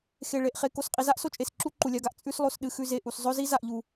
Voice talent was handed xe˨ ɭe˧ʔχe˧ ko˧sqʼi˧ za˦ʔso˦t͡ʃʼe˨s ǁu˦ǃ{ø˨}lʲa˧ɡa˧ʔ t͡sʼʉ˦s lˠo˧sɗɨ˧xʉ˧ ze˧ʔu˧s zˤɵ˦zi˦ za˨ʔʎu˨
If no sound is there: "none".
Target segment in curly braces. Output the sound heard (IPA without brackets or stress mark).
u˨